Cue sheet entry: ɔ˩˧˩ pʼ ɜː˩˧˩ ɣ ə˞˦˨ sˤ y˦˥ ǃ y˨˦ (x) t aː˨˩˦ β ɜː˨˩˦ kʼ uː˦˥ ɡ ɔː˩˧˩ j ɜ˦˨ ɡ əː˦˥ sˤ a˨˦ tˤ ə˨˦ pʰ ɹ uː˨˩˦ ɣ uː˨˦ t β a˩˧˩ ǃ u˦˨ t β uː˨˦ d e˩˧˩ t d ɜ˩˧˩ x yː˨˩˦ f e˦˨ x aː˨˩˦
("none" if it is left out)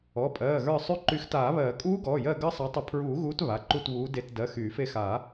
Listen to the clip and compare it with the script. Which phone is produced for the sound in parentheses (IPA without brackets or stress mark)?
x